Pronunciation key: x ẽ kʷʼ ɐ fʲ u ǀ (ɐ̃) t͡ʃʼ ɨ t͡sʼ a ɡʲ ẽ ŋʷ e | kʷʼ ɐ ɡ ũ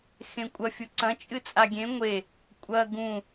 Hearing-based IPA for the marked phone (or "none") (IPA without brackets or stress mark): ɐ̃